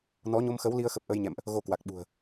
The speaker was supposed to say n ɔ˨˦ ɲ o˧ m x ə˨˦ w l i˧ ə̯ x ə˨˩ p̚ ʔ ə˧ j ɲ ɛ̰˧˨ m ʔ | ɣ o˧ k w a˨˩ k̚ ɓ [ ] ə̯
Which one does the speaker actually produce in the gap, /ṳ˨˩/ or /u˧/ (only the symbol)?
ṳ˨˩